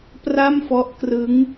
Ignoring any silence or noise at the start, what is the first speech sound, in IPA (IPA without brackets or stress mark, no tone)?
p